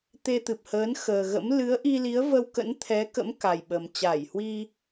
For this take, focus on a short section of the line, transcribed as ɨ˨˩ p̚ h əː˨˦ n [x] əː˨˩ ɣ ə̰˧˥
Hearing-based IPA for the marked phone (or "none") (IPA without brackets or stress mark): x